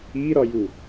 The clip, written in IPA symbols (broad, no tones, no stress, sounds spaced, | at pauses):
i ɾ ɒ j u